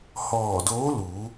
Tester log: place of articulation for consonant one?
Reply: glottal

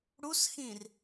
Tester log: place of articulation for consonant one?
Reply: retroflex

